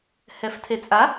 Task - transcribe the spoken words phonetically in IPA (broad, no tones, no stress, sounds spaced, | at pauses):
h ɛ f tʰ e t͡sʼ a